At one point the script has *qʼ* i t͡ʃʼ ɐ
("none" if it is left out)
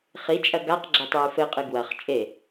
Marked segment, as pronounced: χ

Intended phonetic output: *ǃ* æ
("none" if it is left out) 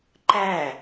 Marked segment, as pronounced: ǃ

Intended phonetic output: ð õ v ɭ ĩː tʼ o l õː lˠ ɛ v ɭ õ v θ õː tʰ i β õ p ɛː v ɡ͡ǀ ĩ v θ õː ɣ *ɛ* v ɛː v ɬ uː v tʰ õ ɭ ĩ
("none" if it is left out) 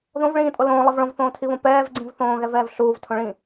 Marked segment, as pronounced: ɛ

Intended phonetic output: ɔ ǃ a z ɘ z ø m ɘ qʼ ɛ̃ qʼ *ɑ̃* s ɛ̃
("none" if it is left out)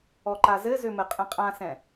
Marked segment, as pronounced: ã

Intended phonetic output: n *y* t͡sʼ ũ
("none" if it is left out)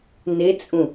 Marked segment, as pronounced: e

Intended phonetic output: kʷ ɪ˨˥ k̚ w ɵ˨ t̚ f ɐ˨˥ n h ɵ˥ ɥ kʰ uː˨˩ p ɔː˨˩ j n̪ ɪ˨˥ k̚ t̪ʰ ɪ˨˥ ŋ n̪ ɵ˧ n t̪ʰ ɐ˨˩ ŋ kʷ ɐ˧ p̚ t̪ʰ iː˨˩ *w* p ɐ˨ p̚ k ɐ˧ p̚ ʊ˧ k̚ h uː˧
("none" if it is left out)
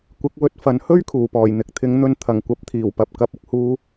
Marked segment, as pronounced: w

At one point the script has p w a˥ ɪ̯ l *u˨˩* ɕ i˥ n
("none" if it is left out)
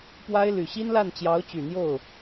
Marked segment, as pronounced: y˨˩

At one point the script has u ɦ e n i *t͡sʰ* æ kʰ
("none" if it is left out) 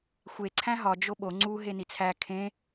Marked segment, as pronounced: t͡sʰ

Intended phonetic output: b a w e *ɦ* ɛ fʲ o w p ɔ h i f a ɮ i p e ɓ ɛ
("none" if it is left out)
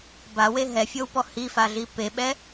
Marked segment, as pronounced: ɦ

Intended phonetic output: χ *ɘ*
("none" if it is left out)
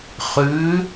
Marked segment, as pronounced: ʉ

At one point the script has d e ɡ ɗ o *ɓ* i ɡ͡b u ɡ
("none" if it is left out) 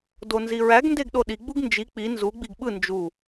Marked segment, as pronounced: ɗ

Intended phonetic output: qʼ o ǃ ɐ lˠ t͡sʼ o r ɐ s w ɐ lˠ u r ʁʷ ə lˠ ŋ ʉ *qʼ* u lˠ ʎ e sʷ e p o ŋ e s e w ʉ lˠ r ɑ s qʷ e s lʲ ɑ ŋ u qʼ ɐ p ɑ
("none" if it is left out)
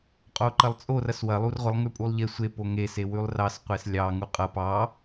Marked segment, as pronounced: pʼ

